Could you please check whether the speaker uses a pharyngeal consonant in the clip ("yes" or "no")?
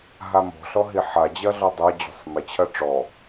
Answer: yes